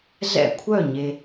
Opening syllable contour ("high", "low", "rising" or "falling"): falling